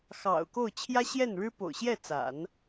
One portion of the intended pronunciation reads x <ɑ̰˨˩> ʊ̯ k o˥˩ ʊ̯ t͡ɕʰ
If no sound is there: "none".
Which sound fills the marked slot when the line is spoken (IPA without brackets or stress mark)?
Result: ɑ̰˨˩